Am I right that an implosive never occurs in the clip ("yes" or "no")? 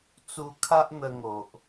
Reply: yes